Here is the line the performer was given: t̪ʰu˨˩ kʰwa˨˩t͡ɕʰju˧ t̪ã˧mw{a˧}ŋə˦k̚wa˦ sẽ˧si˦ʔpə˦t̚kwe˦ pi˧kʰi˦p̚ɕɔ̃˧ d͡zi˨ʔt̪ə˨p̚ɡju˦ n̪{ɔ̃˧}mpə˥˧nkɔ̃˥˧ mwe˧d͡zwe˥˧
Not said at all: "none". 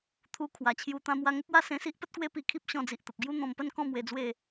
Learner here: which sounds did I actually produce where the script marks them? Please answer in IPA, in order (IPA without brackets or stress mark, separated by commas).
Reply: a˧, ɔ̃˧